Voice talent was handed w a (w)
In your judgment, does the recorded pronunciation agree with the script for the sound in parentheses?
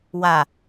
no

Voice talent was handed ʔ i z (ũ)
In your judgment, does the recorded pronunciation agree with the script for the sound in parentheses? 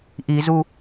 no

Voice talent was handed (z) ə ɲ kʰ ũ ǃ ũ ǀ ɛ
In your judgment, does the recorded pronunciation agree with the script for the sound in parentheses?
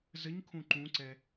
yes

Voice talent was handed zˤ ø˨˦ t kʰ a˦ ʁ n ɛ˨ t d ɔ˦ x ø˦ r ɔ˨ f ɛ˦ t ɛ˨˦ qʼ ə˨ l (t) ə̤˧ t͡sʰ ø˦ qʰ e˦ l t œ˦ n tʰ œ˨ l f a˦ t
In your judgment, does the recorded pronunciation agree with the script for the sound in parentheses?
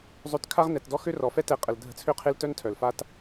no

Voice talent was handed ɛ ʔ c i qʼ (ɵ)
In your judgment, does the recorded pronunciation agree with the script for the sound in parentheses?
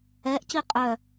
no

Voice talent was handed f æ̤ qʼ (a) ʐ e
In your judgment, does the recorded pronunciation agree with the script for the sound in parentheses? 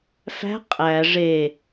no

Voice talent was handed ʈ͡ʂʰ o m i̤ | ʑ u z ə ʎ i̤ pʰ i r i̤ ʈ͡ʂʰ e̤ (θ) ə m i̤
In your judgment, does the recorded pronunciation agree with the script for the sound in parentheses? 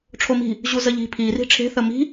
yes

